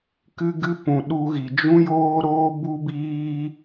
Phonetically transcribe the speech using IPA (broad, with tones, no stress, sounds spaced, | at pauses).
k ɨ˧ ɡ ɨ˧ p ũ˨ ɗ u˧ ɣ i˨ d͡ʒ ũ˦ j oː˦ ɾ oː˦ b u˦ b iː˦